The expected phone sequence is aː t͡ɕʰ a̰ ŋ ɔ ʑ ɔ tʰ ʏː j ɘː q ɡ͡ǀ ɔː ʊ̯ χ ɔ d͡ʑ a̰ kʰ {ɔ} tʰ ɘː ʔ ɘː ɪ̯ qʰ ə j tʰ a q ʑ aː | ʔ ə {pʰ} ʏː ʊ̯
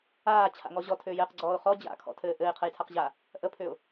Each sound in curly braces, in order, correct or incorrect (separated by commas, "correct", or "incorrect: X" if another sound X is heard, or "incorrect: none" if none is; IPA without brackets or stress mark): incorrect: ɔ̰, correct